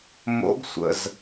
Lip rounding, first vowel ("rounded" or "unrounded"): rounded